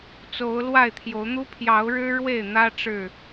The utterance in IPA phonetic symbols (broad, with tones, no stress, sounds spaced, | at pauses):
t͡s o˨˦ ʊ̯ l w a˥˨ ɪ̯ t̪ʰ j o˨˦ ʊ̯ n̪ u˦ pʰ j ɑ˨˦ ʊ̯ ɻ ɻ̩˦ ɻ w e˥˨ ɪ̯ n̪ ä˦ ʈ͡ʂ ɻ̩˥˨